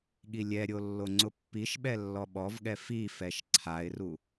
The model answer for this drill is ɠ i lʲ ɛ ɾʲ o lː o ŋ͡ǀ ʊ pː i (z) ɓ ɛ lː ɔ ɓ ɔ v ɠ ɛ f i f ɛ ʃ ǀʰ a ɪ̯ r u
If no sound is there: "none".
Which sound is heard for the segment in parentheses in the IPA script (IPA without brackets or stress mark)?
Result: ʃ